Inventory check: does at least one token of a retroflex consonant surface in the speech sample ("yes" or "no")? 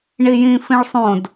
yes